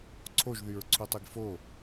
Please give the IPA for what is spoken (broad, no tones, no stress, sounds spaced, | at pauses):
ǀʰ o ʒ ð y ɹ ǀʰ u tˤ e ɡ f o